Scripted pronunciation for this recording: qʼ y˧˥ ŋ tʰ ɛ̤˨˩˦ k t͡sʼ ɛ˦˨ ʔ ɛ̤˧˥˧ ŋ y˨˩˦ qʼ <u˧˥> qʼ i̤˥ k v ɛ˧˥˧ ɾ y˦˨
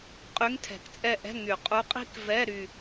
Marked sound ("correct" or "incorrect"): correct